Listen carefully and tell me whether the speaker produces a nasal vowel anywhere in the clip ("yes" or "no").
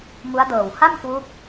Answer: no